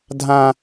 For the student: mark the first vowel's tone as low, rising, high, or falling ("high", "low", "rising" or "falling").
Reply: high